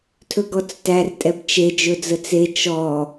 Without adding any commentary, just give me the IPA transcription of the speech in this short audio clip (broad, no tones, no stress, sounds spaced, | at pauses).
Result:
tʰ ɵ ɡ ɔ t͡s t æ r tʼ ɛ b t͡ʃ e d͡ʒ ɵ d͡z ə t͡s e t͡ʃ ɔ